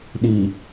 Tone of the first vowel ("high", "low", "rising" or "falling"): low